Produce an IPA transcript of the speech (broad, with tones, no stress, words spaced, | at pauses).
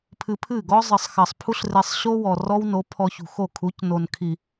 pʰɨ˧pʰɨ˦˨ɡɔ˦ zˤɨ˨sˤxɐ˨sˤ pʰu˦ɬre˧sˤɕo˦ wɔ˨rɔ˦wno˨˦ pʰɔ˧çṳ˨xo˦˨ kʰu˨˦cno˨nkʰi˨